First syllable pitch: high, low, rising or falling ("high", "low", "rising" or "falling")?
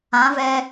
rising